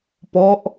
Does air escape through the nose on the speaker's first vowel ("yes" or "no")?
no